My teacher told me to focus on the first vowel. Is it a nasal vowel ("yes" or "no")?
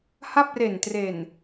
no